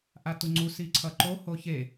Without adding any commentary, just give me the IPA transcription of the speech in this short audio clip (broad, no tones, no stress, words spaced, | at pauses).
ʔatuŋ͡ǀu siǀʰʌǃo hoçe